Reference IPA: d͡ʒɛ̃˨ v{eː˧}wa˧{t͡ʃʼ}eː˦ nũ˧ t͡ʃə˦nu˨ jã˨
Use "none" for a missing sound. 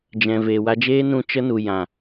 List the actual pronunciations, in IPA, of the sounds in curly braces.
eː˨, d͡ʒ

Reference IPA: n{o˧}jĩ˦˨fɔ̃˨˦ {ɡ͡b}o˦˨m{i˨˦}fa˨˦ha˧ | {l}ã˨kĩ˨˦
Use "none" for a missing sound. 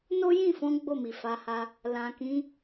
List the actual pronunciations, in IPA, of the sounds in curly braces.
o˦, ɡ͡b, i˨, l

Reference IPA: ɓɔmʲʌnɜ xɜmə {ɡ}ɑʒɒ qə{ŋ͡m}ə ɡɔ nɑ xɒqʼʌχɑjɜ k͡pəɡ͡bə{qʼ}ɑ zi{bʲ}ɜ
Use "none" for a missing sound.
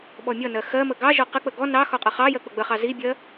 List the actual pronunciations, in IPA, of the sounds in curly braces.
ɡ, k͡p, χ, bʲ

